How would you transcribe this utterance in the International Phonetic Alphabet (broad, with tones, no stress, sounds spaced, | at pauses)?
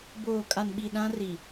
b oː˨ kʼ a˨ n ɓ i˨ ɗ ã˦ r i˨